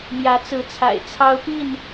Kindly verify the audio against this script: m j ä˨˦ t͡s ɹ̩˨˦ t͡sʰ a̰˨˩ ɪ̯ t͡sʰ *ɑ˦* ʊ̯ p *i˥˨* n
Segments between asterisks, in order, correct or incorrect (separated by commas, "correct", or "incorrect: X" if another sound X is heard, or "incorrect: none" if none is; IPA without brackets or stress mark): correct, correct